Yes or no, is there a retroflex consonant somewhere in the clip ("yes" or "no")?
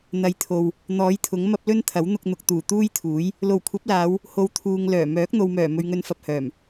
no